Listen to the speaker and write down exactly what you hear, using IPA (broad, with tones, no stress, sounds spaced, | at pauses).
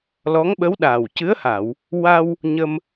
l ɔ˧˥ ŋ ɓ ə˧˥ w ɗ aː˨˩ w c ɨ˧˥ ə̯ h a˨˩˨ w | w a˧ w | ɲ ə˧ m